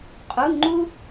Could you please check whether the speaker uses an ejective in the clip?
yes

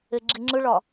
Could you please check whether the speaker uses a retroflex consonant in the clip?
yes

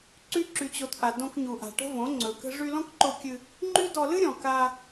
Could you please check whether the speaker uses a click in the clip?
yes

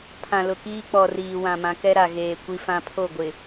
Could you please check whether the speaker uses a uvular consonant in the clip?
no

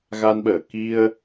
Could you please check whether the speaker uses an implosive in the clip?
yes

